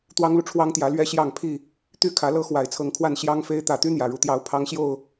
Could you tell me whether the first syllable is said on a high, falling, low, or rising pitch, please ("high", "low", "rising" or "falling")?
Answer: high